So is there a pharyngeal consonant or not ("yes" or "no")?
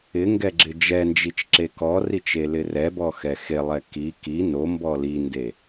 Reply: no